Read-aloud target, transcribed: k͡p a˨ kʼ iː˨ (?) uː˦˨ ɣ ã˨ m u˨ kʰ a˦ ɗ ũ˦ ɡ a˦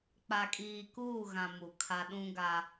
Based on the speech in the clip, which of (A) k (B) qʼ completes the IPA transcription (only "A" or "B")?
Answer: A